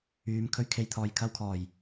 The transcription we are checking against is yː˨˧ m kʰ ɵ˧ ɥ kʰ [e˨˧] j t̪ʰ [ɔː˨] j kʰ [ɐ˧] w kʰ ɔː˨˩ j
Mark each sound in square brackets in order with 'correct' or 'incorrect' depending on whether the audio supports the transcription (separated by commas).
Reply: incorrect, correct, correct